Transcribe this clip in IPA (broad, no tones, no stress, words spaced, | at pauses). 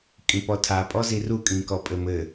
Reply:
kʼĩpɔtʰa pʼɔziru kʼĩkɔpʼɘmɘ